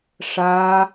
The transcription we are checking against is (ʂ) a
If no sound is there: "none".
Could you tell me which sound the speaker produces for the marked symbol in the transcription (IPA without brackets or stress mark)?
ʂ